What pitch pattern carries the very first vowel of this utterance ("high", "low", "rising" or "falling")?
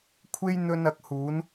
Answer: high